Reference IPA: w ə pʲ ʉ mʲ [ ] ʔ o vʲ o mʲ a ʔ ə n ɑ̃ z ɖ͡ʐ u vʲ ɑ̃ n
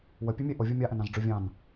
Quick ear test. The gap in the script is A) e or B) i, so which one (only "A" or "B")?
A